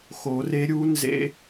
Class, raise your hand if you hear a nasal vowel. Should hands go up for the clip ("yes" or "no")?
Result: no